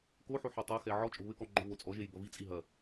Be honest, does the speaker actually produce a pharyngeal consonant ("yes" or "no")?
yes